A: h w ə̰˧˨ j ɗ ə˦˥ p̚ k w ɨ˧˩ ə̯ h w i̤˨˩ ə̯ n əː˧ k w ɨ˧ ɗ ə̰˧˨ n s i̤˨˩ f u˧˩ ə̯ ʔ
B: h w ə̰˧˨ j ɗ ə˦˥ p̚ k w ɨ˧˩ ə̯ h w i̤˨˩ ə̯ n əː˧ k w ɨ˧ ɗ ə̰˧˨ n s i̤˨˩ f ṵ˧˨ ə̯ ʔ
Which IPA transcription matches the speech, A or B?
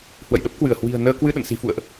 B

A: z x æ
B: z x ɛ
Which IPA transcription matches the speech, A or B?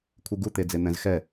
B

